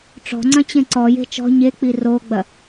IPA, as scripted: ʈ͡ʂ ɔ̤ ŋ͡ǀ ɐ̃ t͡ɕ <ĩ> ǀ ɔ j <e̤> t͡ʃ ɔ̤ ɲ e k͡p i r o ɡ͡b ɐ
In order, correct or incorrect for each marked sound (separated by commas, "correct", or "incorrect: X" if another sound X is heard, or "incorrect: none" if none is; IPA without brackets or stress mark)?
incorrect: ẽ, correct